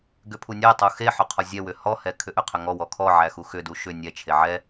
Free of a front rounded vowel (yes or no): no